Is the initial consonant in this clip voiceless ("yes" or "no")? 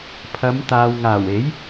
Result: yes